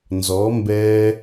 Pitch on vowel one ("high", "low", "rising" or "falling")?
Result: rising